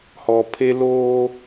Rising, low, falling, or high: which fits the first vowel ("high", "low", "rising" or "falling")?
low